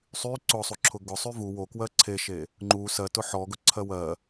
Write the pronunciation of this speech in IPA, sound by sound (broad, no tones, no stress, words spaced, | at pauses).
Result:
sˤy ǀʊsˤuǁʰʊ ɡʊsˤy vu wokwɜ ǀʰeʃe | ŋ͡ǃu sɜtʊ ħɔɡʊǀʰɜ wɜ